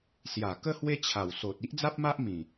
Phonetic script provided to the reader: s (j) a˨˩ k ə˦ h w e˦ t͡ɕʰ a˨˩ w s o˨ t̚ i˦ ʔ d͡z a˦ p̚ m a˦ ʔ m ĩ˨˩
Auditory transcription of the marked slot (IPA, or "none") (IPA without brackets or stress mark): j